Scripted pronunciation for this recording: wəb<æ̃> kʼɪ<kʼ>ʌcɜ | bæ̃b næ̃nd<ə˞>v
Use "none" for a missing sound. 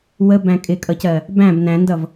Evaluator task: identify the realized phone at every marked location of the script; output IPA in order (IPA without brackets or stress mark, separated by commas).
æ̃, kʼ, ʌ